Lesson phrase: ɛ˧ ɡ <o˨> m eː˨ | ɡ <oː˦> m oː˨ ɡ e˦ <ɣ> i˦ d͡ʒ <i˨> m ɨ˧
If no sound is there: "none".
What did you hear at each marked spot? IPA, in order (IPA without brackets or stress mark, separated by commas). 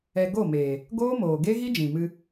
o˦˨, oː˦, ɣ, ĩ˨